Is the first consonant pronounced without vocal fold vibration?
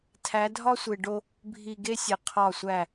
yes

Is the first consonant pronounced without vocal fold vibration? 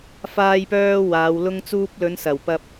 yes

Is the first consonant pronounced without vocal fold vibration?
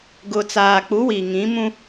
no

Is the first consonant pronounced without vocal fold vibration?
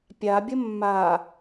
yes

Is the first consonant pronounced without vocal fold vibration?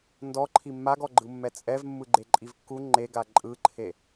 no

